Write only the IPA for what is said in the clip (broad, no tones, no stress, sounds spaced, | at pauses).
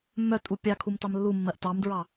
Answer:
mː œ tʼ u pʲ ɑ kʰ u m t ɑ m lː u mː ɜ ʔ t ɑ m d ɹ ɑ